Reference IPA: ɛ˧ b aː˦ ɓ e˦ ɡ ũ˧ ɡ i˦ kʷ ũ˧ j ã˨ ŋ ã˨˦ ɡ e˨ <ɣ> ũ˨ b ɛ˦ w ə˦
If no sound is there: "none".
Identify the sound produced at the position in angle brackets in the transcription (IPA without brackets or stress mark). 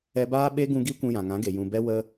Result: j